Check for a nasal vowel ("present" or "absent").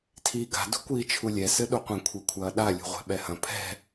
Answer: present